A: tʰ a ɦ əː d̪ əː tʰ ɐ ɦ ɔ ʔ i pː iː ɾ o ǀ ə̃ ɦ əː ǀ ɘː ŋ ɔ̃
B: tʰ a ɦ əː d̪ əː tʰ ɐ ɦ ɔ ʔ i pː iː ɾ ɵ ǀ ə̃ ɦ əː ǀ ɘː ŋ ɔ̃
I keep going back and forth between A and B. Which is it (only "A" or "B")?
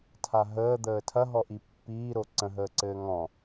A